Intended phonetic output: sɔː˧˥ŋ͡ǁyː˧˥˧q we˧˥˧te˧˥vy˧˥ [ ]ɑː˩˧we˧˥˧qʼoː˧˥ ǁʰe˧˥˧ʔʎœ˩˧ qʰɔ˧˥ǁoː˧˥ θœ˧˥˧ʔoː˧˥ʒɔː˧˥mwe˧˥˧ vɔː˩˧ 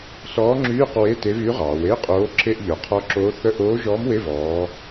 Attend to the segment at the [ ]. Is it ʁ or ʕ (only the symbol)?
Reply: ʁ